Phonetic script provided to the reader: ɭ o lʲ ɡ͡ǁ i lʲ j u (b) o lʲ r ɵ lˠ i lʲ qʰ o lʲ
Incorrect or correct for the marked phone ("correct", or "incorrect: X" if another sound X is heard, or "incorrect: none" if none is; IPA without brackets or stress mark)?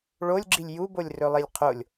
correct